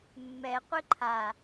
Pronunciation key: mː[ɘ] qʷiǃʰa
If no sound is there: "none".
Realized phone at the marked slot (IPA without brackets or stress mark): ɛ